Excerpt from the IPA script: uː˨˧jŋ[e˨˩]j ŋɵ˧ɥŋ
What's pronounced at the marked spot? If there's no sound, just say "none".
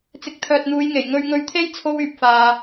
e˨˩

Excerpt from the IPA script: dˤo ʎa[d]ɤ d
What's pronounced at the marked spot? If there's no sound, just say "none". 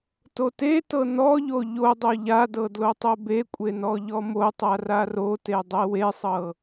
d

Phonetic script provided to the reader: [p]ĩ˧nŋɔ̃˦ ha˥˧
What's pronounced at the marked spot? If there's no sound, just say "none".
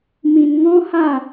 m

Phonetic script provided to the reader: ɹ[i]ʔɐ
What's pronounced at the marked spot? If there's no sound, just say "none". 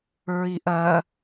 i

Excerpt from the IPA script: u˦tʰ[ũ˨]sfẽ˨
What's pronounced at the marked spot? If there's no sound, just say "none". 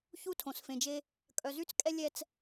õ˨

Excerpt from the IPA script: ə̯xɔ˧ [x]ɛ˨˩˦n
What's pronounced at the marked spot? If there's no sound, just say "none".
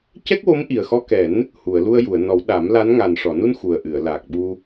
k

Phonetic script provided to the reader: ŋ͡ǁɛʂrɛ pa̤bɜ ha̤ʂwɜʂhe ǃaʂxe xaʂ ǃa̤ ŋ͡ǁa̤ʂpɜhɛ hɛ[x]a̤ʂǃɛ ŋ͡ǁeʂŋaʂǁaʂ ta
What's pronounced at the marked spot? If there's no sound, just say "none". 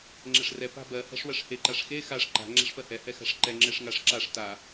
x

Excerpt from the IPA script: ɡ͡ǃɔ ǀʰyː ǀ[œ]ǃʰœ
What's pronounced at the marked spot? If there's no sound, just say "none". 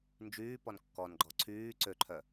ø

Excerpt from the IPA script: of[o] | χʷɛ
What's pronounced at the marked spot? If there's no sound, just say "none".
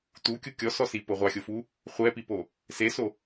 u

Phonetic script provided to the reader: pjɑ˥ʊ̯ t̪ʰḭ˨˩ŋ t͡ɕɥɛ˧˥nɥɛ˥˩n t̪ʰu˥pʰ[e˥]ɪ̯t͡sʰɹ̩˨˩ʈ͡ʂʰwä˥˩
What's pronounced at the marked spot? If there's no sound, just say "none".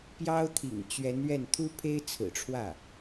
e˥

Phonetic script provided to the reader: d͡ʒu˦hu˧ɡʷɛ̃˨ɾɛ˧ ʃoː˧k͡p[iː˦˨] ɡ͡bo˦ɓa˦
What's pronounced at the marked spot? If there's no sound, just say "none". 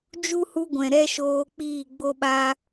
iː˦˨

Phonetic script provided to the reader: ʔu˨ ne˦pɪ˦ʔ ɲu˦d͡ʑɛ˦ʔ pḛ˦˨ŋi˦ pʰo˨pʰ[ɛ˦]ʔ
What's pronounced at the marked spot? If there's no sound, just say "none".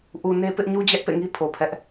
ɛ˦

